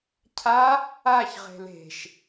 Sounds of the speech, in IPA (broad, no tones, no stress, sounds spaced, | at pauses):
cʰ a | a ç ʁ e̤ l e̤ ʃ